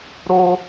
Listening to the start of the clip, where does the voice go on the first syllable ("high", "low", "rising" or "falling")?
high